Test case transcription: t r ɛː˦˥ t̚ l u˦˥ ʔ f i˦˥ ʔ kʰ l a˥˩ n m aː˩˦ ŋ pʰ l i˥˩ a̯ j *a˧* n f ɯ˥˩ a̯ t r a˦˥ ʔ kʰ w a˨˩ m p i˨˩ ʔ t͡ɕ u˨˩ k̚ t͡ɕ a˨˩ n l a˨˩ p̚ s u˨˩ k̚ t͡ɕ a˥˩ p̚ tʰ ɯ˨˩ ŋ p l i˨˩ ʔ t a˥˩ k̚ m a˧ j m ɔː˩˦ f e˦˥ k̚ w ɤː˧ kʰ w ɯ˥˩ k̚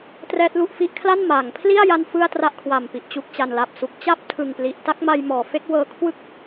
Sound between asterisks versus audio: correct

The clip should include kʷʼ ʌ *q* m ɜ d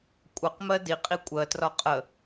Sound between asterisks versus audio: correct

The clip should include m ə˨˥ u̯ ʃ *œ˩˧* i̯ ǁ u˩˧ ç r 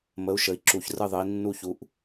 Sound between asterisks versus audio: incorrect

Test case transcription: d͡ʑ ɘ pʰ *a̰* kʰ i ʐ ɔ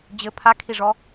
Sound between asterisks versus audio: incorrect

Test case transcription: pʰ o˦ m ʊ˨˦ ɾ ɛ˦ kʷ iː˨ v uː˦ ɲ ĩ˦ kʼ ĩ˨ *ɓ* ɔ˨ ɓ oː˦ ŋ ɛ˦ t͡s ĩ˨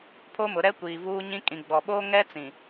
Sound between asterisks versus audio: incorrect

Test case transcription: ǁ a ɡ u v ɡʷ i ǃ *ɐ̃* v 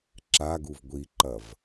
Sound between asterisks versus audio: incorrect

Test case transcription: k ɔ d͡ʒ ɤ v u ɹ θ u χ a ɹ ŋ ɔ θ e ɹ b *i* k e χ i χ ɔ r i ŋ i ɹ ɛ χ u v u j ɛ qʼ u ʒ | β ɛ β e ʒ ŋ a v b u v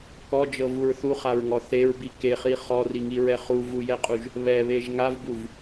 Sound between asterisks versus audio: correct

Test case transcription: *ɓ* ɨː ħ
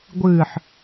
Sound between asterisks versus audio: incorrect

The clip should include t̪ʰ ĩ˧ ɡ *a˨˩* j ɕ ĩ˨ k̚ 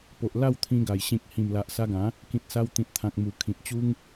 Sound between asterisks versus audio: correct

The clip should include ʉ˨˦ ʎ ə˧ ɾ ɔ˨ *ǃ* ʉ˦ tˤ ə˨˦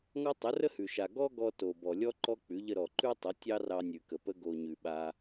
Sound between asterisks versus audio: correct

